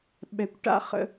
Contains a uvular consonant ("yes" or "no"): yes